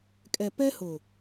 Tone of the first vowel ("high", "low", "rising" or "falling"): low